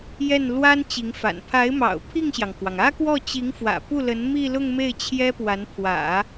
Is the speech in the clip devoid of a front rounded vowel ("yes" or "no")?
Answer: yes